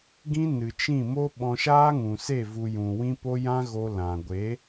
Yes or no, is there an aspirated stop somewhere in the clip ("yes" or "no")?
no